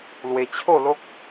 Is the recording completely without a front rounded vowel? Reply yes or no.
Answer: yes